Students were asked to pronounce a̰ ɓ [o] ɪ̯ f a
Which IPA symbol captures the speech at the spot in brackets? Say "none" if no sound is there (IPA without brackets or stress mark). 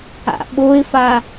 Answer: o